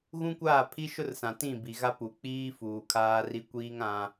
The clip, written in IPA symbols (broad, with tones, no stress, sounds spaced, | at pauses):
ɣ ũ˦ kʷ aː˦˨ pʰ i˦ ʃ ʊ˦ r s ã˨ t ĩ˦˨ b i˨ ɣ a˦ p u˨ k͡p iː˦ f uː˨ kʰ aː˦ r i˦ kʷ iː˦ ŋ ã˦